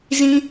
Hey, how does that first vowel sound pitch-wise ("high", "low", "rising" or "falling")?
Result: high